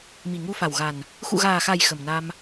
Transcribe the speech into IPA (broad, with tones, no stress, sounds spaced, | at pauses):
m i˨˩ ŋ u˧ f a˨˩ w ɣ a˨˩ n | x ṵ˧˨ ɣ aː˨˩ x a˨˩ j x ə˨˩ m n a˧ m